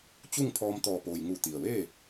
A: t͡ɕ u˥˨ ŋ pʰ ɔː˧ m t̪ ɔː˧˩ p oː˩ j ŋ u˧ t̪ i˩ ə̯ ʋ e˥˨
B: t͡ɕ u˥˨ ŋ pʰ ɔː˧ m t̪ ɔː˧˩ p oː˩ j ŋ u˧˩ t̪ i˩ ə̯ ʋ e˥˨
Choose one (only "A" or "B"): B